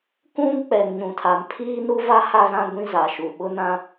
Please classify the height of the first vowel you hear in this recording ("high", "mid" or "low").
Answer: high